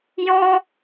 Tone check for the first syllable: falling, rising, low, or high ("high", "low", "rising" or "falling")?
high